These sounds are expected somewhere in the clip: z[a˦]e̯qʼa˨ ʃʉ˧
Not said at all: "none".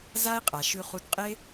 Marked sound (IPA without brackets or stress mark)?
a˦